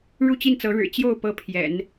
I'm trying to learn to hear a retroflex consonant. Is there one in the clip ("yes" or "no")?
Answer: yes